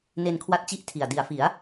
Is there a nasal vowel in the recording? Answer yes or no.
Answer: no